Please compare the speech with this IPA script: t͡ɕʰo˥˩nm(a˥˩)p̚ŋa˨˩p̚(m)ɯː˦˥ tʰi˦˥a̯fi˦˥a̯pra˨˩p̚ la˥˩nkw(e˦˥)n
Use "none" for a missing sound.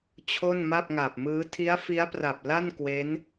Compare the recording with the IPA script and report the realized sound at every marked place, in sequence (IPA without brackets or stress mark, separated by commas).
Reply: a˥˩, m, e˦˥